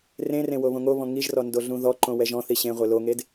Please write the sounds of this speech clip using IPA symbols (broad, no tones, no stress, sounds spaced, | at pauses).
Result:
r ẽ r ẽ w o β õ ŋ o β ɔ̃ ŋ i ʒ r ɔ n d o ɮ ũ ð ɔ ǃ õ w ɛ ʒ ɔ̃ θ i ɕ ẽ ʁʷ e l o ŋ e d